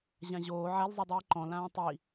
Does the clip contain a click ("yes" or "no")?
yes